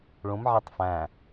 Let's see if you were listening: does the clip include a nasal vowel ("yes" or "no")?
yes